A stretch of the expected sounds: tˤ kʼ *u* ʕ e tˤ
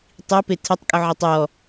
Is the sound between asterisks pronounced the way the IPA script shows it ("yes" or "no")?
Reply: yes